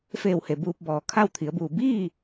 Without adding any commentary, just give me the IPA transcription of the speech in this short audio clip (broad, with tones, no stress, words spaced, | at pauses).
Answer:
feː˧˩whe˩ buː˧p̚bɔː˩ kʰa˥˨wt̪ʰi˩˧ə̯buː˧˩ biː˥˨